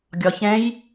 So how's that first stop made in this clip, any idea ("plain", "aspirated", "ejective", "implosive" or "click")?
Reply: plain